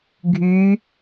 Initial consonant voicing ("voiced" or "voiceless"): voiced